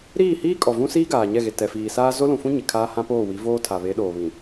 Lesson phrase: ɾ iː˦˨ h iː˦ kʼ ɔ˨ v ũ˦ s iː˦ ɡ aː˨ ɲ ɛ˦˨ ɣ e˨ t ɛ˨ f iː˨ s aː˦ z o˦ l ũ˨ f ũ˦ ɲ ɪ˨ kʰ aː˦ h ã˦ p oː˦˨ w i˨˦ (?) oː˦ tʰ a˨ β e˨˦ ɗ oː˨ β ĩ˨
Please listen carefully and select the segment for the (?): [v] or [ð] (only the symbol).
v